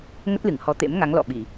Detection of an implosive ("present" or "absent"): present